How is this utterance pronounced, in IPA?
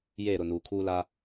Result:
jeː˦˨ɾʊ˦˨nuː˨ kʰuː˦la˦

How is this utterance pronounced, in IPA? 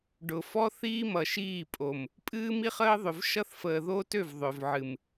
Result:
ɖʊ˨fɔ˦θiː˦ mʌ˨ʃiː˦˨pʼo˨m | pʼɨː˦mi˦χəː˦ðˤø˨v ʃʌ˦θfəː˨ðo˦tø˦˨v ðˤø˨vʕɨ˨m

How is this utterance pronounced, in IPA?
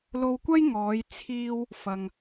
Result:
lo˧wkʷɐ˥j ŋɔː˨˧jt͡sʰiː˧w | fɐ˨ŋ

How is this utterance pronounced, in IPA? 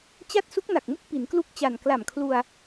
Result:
t͡ɕa˥˩t̚ su˦˥k̚na˨˩k̚mu˦˥k̚ pi˩˦nklu˥˩k̚t͡ɕa˨˩n kla˨˩mkʰlu˧a̯

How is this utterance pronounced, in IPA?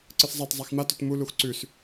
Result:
ǀɨszˤat zˤaxma tɵtmu luxǀʉs

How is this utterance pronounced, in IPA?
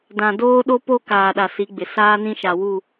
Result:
dã˨doː˦ ɗo˦po˦ kaː˨ɗa˨si˨˦ɡ͡bɪ˨ saː˦nĩ˦ʃa˨ wu˦˨

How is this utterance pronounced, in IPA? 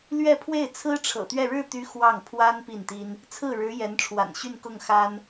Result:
lɥɛ˥˧pʰwe˥˩ɪ̯ t͡sʰɹ̩˥ʈ͡ʂʰɤ̰˨˩t̪ɥɛ˥˧ ɻɻ̩˥˩t̪y˧˥ xwɑ˥˩ŋ pʰwa˥n pi˥˩nt̪i˥n | t͡sʰɹ̩˥˩ɻɻ̩˧˥ jɛ˧˥nʈ͡ʂʰwa̰˨˩nɕy˥˧n kʊ˥˩ŋ xa˥n

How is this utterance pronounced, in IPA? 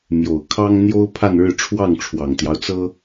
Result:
mjo˨˩ʊ̯ kʰɑ˥ŋn̪jo˥ʊ̯ pʰa˥˧nɻɻ̩˥˧ ʈ͡ʂʰwɑ˥˩ŋʈ͡ʂʰwɑ˨˩ŋt̪jɑ˦ʊ̯t͡sɤ˥

